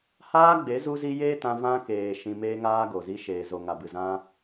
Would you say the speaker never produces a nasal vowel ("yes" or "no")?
no